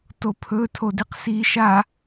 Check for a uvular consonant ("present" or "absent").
present